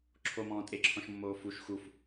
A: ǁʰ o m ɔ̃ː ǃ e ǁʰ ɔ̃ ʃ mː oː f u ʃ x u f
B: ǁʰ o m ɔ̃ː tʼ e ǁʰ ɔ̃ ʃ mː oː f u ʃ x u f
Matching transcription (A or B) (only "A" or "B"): B